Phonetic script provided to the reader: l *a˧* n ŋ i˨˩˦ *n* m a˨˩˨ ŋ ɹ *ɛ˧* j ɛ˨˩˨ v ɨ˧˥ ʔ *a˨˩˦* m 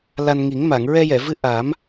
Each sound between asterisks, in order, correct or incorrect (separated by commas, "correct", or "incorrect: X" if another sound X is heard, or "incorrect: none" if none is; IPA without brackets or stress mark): correct, incorrect: ŋ, correct, correct